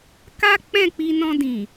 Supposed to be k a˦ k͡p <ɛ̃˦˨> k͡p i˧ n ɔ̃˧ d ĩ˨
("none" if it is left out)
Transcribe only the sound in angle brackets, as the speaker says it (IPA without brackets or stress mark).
ɛ̃˦˨